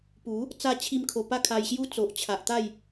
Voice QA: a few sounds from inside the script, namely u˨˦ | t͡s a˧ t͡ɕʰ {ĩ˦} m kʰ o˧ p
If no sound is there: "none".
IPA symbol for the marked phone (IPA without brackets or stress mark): i˦